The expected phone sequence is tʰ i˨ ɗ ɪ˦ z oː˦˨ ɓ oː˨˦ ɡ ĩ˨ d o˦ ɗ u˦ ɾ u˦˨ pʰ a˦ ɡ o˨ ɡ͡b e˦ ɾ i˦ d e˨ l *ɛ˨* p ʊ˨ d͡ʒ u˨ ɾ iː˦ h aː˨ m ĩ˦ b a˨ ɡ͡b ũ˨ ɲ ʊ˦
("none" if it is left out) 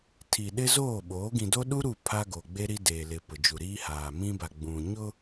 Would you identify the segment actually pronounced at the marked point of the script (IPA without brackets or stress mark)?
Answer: ɪ˨